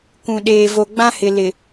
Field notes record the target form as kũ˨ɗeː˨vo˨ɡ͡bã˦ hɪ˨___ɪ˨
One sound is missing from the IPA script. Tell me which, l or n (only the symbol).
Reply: l